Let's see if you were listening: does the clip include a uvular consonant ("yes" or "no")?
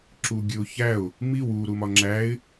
no